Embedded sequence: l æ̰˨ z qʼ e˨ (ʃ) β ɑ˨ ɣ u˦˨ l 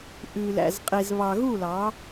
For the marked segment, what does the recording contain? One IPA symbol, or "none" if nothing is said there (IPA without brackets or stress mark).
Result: z